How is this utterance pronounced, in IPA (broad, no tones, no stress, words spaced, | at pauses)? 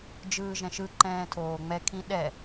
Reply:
d͡ʒɯːʒɛ̃ʃɯǃɛ̃ː tʰoːŋ͡mɛkʰĩ ɗɛ